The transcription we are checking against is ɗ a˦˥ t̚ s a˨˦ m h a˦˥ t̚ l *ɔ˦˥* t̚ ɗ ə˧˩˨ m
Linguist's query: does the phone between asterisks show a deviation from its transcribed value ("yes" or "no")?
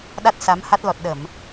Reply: yes